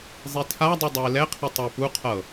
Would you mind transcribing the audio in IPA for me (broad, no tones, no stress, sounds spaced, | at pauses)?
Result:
zˤ i tʰ a dˤ u dˤ ɛ e̯ l ɛ qʰ i tˤ ɤ p u qʰ ɤ